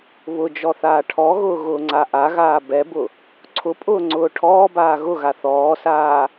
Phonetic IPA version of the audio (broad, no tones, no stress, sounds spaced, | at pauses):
β ʊ d͡ʒ ɔ θ aː ʈʰ ɔ ɣ ʊː ɣ ʊː ŋ͡ǀ a ʔ a ɣ aː b ɛ b ʊ | ǀʰ ʊ pʼ ʊː ŋ͡ǀ ʊː ʈʰ ɔː b aː ɣ ʊ ɣ a θ ɔː s aː